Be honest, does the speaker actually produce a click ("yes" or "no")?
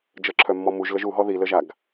yes